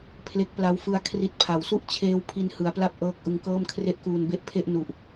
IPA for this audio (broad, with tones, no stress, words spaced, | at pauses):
pʰle˦˥k̚pla˦˥w fɯ˧a̯ kʰri˦˥t̚ pʰa˩˦wsu˥˩ʔt͡ɕʰeː˦˥w pʰi˧nhɯ˩˦a̯pla˥˩p̚ ʔɤː˥˩k̚ ʔɯ˧ŋkɤː˥˩mkʰre˥˩ʔ kuː˧nbe˥˩ʔpʰe˥˩ʔ nu˨˩ʔ